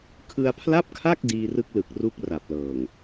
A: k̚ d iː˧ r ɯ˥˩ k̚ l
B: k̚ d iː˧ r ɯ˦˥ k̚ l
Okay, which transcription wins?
B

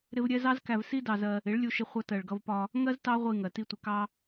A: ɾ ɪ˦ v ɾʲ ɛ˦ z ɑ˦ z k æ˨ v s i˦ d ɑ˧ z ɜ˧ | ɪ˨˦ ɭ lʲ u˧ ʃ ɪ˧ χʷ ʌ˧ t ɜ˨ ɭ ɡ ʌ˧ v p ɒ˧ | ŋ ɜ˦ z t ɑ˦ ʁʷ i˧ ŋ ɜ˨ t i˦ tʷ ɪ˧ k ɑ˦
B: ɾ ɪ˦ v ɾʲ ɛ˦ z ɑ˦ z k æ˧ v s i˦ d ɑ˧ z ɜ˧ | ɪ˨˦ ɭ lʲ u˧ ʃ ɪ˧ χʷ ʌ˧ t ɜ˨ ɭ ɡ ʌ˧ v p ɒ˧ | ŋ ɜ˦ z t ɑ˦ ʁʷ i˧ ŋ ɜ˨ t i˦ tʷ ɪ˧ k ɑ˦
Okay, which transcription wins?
B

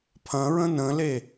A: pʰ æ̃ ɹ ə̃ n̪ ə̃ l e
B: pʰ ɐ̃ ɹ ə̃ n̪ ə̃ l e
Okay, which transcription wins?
B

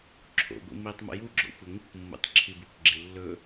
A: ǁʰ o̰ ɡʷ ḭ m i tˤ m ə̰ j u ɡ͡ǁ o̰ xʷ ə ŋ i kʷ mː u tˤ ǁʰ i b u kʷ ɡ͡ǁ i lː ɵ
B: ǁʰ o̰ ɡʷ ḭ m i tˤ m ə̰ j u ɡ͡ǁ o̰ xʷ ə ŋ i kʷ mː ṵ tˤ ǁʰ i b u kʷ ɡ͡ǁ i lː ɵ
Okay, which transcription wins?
B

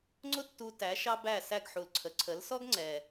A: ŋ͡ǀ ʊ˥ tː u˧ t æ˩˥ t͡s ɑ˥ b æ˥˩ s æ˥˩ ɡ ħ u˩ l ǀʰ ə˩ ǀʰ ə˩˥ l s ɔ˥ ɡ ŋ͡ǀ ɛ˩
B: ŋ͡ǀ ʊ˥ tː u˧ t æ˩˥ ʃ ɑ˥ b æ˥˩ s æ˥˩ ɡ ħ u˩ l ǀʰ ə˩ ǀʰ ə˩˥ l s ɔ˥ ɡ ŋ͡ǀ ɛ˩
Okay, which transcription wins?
B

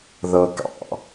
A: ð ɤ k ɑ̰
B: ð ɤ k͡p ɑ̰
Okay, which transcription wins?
A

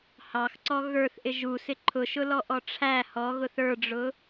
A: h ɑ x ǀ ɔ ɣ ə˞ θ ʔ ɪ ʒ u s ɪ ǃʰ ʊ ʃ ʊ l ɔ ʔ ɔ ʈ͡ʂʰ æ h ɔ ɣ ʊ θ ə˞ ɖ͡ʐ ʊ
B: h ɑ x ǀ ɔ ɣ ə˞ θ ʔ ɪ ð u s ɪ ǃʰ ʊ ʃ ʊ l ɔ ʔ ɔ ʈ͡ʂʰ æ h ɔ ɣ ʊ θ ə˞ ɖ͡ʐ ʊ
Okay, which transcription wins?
A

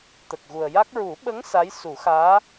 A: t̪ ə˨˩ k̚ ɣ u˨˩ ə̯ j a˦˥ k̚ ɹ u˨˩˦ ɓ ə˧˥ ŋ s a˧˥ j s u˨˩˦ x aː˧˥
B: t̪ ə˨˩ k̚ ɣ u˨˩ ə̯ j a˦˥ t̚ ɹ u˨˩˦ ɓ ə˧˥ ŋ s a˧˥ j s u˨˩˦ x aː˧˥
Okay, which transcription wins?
A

